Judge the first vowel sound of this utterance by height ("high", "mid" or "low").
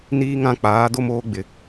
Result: high